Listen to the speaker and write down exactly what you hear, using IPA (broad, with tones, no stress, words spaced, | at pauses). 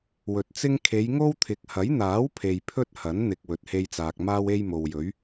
wɵ˨t̚t͡sɪ˥ŋ kʰe˨˧jŋo˥wt̪ʰɪ˨˥k̚ hɐ˨˥jn̪aː˨˥wpʰe˨j pʰɵ˥t̚hɐ˨˥nn̪ɪ˨k̚ wɵ˨t̚he˧jt͡saː˨k̚ maː˥we˥jmo˨wjɵ˨˥ɥ